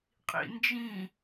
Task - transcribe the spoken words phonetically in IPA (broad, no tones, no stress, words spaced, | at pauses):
qʼḭnd͡ʒĩ